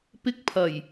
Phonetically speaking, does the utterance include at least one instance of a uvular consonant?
no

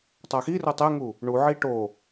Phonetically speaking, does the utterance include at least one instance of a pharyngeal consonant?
yes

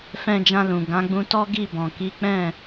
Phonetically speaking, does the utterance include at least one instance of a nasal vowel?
yes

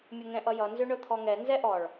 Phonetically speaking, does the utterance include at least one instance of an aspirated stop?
yes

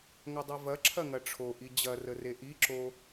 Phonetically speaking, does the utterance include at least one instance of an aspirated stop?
yes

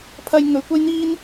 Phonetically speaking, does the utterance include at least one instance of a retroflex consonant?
no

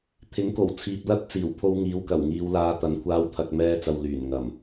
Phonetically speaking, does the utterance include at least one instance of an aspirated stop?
yes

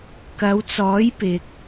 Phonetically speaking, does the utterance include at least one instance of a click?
no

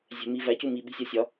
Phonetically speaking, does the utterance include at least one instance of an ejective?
no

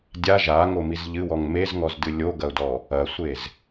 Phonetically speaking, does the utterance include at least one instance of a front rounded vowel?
no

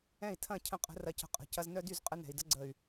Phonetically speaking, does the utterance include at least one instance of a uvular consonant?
yes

